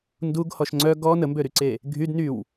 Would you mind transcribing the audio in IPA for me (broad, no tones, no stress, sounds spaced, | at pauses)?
n d u ɡ h ɔ ʃ ŋ͡ǀ œ ɡ ɔ n ə m b ø ɾ y ǀ e | ɡʱ y d n y w